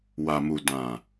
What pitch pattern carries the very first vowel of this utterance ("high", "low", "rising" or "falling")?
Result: low